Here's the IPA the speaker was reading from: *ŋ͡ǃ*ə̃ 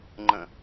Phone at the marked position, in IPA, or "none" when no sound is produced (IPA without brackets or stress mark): ŋ͡ǃ